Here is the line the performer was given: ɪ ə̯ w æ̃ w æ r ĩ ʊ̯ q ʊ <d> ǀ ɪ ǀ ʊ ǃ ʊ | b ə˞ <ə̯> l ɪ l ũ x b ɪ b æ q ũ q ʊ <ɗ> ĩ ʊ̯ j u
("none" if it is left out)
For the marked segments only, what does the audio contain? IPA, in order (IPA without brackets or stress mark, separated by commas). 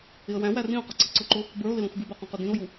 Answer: none, ʊ̯, d